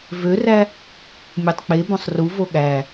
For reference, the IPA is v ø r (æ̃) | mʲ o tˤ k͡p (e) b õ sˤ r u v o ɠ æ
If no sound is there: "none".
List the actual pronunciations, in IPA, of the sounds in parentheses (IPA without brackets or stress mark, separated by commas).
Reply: æ, e